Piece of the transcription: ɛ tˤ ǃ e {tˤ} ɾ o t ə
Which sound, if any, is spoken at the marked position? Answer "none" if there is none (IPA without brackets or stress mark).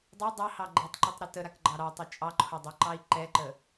tˤ